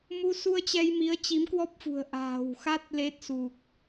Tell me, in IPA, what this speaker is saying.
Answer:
mu˧su˧ə̯t͡ɕɛ˧jmi˨˦ə̯ t͡ɕi˨˦mkwɔ˦˥p̚fṳ˨˩ə̯ ʔa̤ː˨˩wxa˦˥t̚ le˦˥t̚su˨˩k̚

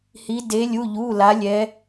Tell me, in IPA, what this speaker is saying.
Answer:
hi˧˥ deː˧˥lʲu˧˥˧ʎuː˧˥˧la˧˥ lʲɛ˧˥

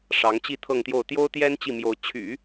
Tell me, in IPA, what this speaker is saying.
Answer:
ʂɑ˧˥ŋt͡ɕi˥˧t̪ʰɤ˥˧ŋt̪jo˥˩ʊ̯ t̪jo˥ʊ̯t̪jɛ˥n t͡ɕi˥˩mjo˧˥ʊ̯ t͡ɕʰy̰˨˩˦

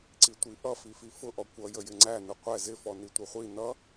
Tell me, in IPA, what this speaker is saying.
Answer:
ǀitʷiʔʌ fififʊʔɔ kʷʌjəjɪ ŋ͡ǀænʊ qʷɛ zɪfɔ nitʷəχʷi nʌ

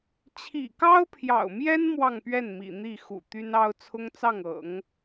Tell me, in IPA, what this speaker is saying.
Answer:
t͡ɕʰḭ˨˩kɑ˥ʊ̯pʰjɑ̰˨˩ʊ̯mjɛ˥n mwɑ˥˧ŋpɥɛ˥˩n mḭ˨˩n̪i˥˩ xṵ˨˩t̪y˥nɑ˥ʊ̯ t͡sʰʊ˥ŋt͡sɑ˥˩ŋɤ̰˨˩˦ŋ

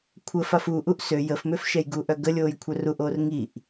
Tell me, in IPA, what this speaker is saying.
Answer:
kʷʰə fafuʔuʔ sø jəfmøf ʃɛjɡuʔœ ɡəlʲoːj kʷʰœruʔoːr ŋiʔ

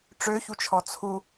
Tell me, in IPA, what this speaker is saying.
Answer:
ʈ͡ʂøçut͡ʃʰɔ t͡sʰu

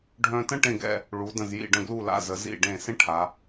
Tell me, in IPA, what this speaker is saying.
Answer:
ɖʱœ̃˧tə̃˥ ʈẽ˥˧ɡɛ̰˥˧ | ɭu˩˧də̃˧˩z jḭ˧˩ɖə̃˧˩ɡlu˧˩la̰˧˩ zə˩˧ zḭ˧˩ ɖẽ˧˩ sẽ˥ ʈʰa˩˧

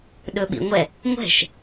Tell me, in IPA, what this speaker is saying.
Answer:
ɗɵɓḭŋʷɛ | ŋʷɛ̤ʃ

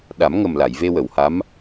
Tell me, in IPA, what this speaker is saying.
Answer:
ɗa˨˩˦mŋə˨˩mla˨˩˨j ve˧wə˨˩˨wha˧˥m

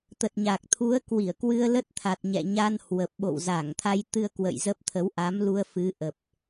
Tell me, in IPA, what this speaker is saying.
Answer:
t̪ə˨˩t̚ɲa˨˩k̚t̪ʰu˨˦ə̯kwi˧˩ə̯ kwɨ˧ə̯lə˦˥t̚t̪ʰa˨˩t̚ɲɛ̰˧˨ ɲa˧nhwə˨˩p̚ɓo̰˧˨w za˧˩ŋ t̪ʰa˧jt̪ɨ˧ə̯kwə̰˧˨j zə˦˥p̚ t̪ʰə˨˦wʔa˨˦mlu˧ə̯ fɨ˨˦ʔə˨˩p̚

